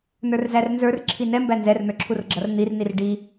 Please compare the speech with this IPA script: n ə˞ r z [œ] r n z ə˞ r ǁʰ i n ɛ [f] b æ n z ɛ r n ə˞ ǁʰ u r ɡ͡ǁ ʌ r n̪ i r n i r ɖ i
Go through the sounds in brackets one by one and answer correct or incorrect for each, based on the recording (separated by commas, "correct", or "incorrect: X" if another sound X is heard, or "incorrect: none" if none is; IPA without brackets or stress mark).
incorrect: æ, incorrect: m